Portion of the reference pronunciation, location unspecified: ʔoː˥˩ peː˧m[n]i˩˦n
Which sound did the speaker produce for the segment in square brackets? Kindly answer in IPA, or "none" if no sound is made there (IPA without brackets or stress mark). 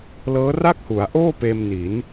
n